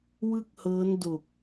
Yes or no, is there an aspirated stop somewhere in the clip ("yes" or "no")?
no